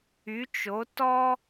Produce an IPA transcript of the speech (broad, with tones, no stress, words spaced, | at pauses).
y˨˥t͡ʃo˨˥ tɔ˦